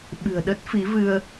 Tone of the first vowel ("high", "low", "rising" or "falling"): low